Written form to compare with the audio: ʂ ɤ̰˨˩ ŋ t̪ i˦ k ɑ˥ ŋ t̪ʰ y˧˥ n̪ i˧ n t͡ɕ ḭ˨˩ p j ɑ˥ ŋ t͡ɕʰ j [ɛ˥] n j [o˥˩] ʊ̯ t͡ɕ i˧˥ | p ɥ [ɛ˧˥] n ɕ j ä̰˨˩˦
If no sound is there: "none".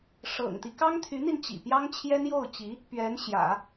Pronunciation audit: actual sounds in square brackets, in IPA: ɛ˥, o˥˩, ɛ˧˥

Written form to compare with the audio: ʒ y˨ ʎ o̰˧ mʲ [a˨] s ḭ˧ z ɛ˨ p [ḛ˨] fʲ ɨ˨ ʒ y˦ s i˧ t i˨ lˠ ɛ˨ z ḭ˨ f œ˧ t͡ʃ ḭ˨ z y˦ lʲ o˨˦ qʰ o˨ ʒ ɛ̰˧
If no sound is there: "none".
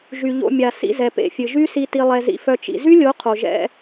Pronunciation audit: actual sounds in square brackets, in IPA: a˨, ḛ˨

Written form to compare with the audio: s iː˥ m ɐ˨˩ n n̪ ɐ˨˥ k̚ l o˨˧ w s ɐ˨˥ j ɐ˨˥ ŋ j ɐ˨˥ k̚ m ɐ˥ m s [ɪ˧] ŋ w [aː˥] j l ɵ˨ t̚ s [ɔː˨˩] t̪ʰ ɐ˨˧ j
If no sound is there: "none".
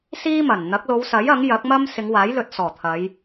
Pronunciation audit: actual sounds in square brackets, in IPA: ɪ˨˧, aː˨˥, ɔː˨˩

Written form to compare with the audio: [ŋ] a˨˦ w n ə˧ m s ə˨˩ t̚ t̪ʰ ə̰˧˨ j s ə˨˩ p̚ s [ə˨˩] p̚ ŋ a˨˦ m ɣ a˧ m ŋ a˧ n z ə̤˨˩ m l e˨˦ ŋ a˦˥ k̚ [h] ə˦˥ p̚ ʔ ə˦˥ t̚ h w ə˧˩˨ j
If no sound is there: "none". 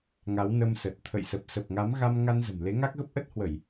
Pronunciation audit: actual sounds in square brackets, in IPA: ŋ, ə˨˩, ɣ

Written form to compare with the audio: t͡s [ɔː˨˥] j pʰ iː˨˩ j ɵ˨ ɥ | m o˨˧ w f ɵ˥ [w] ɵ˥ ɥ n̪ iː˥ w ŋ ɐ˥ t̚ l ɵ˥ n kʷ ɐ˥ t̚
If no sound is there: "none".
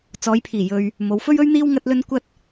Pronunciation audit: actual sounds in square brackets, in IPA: ɔː˨˧, ɥ

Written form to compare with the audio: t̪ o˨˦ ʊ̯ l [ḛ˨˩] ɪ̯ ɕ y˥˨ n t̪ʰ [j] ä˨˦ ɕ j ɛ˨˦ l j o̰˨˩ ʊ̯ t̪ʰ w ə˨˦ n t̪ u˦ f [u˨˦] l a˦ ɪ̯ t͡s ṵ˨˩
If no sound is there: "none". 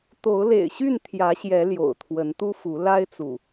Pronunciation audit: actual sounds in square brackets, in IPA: ḛ˨˩, j, u˨˦

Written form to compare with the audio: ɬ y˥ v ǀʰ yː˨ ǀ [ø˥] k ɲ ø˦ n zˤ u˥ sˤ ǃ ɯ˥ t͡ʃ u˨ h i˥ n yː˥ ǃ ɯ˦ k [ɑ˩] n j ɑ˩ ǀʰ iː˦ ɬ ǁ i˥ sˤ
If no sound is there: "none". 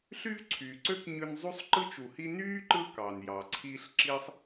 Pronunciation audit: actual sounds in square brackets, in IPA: ø˥, ɑ˩

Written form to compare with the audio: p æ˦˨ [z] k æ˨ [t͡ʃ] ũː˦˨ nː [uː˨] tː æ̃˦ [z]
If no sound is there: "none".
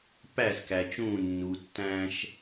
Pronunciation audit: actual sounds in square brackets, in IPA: z, t͡ʃ, u˨, ʃ

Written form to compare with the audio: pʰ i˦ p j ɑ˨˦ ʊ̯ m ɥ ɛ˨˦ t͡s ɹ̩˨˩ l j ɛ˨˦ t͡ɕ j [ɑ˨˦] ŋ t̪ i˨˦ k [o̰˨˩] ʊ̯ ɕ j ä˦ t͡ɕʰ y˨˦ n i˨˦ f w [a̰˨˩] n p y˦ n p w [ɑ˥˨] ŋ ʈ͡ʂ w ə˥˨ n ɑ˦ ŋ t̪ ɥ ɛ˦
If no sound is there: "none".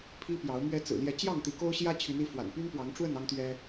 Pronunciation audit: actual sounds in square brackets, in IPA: ɑ˥˨, o˦, a̰˨˩, ɑ˨˦

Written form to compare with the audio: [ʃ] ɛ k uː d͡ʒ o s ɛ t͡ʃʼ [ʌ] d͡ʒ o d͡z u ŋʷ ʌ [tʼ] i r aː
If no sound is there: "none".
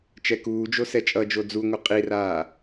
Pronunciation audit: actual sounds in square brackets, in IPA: t͡ʃ, ʌ, qʼ

